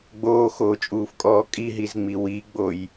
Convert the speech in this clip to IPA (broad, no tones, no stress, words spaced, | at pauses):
ɡ͡boːxoːt͡ʃʼuːfkʼɔː kʼiɦizŋ͡mi wiɡ͡boj